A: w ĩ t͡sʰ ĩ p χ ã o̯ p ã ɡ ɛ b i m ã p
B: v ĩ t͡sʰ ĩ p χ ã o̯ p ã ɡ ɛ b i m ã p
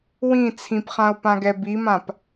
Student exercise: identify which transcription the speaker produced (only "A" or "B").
A